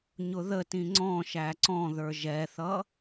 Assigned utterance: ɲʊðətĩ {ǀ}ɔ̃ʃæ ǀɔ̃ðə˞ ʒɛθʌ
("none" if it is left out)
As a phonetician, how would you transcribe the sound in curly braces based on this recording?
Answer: ŋ͡ǀ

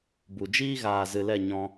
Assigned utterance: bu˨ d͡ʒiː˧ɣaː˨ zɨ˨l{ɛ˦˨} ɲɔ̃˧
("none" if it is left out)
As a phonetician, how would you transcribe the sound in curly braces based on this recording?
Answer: ɛ˦˨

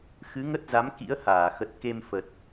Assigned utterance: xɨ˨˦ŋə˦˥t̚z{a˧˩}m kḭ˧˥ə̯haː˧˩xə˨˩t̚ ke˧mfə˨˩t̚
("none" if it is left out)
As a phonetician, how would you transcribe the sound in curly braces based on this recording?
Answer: a˨˦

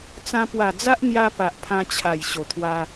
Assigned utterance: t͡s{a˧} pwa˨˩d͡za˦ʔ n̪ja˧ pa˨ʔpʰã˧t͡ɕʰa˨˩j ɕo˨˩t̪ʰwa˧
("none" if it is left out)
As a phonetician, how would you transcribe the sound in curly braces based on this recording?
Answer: ã˧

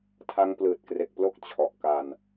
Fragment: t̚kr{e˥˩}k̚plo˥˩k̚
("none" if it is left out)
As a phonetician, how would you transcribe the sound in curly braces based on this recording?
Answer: e˨˩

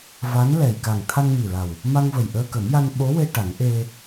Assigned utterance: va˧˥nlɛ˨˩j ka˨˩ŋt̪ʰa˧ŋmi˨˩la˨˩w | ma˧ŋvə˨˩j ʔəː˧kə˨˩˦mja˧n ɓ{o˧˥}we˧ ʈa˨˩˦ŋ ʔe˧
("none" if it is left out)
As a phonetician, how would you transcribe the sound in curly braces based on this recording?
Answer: o˧˥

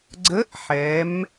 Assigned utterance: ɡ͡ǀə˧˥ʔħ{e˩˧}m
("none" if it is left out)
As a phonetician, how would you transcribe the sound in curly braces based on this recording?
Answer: ɛ˩˧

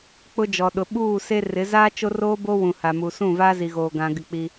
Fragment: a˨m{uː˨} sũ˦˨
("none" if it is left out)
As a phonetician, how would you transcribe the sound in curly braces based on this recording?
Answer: u˨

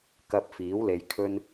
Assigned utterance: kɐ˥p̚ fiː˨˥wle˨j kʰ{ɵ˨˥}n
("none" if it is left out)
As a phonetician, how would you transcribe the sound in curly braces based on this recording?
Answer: ɵ˥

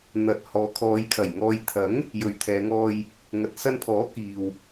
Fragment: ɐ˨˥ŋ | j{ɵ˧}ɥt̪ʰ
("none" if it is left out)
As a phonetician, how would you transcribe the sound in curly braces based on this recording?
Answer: ɵ˨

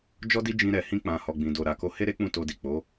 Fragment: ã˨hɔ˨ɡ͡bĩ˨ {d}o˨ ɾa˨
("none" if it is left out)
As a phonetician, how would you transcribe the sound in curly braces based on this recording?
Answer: d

